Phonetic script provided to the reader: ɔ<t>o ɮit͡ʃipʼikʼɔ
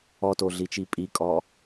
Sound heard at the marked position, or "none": t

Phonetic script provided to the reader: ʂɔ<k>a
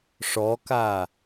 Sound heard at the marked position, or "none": k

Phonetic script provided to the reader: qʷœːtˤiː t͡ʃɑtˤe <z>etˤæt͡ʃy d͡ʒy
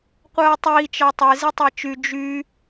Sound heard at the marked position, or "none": z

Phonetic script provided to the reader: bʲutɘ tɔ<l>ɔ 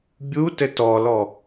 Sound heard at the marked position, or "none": l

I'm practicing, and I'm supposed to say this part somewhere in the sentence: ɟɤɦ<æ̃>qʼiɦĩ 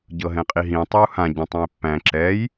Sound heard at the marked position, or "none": ɛ̃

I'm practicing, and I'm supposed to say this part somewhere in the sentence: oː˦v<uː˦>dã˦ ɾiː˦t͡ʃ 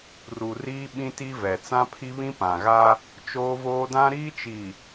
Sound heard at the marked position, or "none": oː˦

